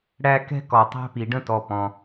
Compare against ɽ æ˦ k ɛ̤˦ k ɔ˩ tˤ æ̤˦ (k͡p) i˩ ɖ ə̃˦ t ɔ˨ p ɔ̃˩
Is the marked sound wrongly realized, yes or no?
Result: yes